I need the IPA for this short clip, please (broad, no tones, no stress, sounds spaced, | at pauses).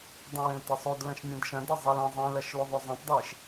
dˤ ɐ̃ w ẽ l t e sˤ o d l ɐ̃ ʃ mʲ ɐ̃ d ʃ ɐ̃ d ɐ zˤ ɛ l ɐ̃ zˤ ẽ l ɐ ʃ l o ðˤ o zˤ ɐ̃ tˤ dˤ e ʃ